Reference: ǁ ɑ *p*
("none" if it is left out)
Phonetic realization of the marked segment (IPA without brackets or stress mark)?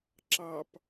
p